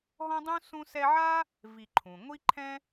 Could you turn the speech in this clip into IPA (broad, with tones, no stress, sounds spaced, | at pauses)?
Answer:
ɦ ɔ̃˥ dˤ ũ˥ s ũ˦ s ɛ˦ ʕ a˥ | v i˨ ǃʰ ũ˩ ŋʷ i˦ ǃʰ ɛ̃˥